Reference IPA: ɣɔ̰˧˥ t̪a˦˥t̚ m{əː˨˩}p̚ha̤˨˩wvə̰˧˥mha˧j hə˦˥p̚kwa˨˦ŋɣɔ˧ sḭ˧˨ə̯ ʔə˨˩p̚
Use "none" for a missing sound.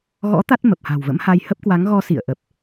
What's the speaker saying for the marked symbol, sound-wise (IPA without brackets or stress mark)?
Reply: ə˨˩